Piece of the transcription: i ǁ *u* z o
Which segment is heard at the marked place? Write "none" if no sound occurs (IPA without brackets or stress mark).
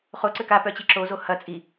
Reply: o